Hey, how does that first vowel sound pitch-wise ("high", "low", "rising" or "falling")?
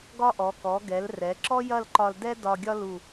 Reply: high